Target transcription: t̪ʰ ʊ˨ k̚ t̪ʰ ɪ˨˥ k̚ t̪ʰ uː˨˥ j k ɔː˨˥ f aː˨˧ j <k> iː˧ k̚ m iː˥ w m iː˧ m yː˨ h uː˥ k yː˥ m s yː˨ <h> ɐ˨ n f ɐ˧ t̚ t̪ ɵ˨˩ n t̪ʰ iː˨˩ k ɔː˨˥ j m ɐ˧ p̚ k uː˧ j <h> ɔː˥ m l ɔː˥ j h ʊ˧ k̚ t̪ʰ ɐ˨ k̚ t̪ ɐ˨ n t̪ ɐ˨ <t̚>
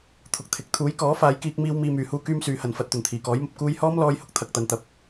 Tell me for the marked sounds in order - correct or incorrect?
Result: correct, correct, correct, incorrect

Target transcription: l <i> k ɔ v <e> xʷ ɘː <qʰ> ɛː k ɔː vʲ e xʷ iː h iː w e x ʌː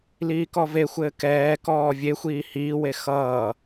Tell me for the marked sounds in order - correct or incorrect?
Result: incorrect, correct, incorrect

